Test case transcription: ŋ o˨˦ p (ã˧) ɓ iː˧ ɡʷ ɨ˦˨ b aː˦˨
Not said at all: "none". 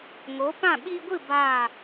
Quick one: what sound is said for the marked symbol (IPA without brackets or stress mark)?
ã˦˨